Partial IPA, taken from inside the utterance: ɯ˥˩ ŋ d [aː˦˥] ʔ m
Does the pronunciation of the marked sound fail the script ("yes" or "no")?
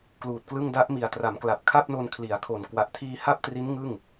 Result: yes